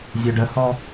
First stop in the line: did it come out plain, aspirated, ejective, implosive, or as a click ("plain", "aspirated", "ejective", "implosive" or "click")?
plain